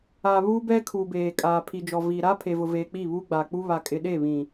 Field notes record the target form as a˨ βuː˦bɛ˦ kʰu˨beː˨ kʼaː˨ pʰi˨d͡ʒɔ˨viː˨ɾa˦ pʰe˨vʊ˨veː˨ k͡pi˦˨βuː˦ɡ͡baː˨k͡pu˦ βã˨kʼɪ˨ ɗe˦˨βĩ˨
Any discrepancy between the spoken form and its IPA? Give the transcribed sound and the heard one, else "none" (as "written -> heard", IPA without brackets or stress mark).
ã˨ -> a˨